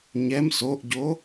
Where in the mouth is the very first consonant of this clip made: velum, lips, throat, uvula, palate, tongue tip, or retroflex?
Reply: palate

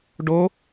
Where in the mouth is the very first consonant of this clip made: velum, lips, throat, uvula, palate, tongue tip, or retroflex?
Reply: retroflex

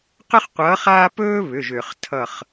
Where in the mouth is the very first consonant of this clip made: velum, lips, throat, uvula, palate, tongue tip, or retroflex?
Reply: uvula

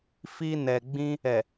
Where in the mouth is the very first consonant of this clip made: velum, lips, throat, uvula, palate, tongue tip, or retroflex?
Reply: lips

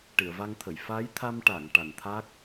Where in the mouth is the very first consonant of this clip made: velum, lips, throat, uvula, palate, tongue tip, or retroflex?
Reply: retroflex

